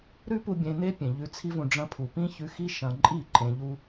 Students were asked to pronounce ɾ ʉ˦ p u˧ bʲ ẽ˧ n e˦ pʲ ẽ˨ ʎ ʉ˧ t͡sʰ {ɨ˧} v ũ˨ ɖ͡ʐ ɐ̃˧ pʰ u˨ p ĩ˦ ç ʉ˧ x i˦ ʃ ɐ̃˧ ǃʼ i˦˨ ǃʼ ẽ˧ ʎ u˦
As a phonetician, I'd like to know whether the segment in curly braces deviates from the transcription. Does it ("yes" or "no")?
yes